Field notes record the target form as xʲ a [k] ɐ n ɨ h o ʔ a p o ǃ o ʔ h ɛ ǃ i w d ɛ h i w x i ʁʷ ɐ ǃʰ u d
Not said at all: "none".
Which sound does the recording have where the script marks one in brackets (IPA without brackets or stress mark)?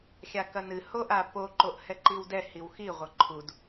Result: k